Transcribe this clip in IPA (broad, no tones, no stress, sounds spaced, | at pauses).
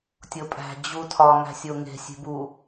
tʲ o pʼ æ̤ d͡ʑ u tʰ ɒ ŋ æ̤ sʲ o ŋ e̤ sʲ e̤ b u